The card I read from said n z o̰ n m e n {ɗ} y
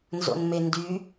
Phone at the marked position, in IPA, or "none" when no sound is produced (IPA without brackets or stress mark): d